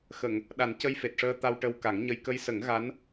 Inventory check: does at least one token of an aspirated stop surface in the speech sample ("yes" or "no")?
no